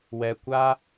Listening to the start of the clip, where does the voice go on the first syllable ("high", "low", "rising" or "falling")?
low